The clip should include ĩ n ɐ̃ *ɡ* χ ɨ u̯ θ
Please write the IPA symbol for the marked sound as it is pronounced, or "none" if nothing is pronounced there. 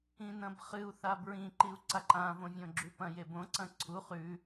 b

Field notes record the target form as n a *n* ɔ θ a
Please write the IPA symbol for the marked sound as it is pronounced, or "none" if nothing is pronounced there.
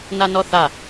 n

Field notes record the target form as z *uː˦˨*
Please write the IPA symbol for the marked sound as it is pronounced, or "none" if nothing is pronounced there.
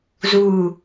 uː˦˨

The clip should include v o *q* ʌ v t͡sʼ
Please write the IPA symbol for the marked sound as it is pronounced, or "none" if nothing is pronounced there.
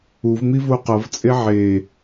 q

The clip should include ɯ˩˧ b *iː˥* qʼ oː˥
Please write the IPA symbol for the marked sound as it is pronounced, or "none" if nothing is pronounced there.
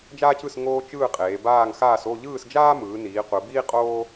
iː˥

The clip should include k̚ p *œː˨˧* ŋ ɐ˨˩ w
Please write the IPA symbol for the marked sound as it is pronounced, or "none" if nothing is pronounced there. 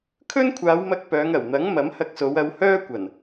œː˨˧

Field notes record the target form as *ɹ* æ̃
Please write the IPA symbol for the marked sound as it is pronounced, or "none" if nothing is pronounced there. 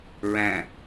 ɹ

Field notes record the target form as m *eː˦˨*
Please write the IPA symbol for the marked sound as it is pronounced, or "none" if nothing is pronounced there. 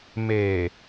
eː˨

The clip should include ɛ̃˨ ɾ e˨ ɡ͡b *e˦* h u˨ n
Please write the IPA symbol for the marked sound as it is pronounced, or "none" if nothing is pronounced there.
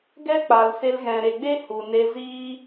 e˦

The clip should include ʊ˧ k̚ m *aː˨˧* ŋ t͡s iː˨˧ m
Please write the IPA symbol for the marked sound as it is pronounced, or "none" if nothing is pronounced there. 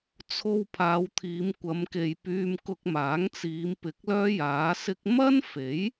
aː˨˥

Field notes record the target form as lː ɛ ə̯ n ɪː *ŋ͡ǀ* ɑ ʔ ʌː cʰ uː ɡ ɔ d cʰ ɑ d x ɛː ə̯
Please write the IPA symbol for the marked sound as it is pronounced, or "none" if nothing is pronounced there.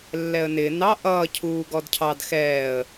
n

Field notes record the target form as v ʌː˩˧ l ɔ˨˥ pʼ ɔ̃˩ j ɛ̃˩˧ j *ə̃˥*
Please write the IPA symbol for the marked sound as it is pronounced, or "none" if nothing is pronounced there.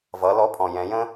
ə̃˥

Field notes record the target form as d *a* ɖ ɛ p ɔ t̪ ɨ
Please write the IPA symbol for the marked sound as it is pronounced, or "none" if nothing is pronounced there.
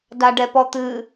a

